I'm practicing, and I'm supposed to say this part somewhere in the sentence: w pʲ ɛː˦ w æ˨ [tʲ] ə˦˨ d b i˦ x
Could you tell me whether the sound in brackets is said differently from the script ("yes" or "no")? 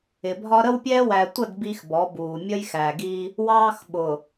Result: yes